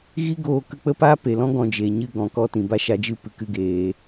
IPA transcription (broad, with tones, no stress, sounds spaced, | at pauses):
ɣ i˦ ɡ oː˧ k ə˧ k͡p ə˦ p aː˦ p e˨ l ɔ̃˦ ɡ ɔ̃˧ d͡ʒ e˨ ɲ ɨ˦ ɡ ɔ̃˨ k ɔ˦ t ĩ˨ b a˧ ʃ a˧ d͡ʒ ɨ˦˨ p ɨ˧ k ɨ˧ ɡ eː˨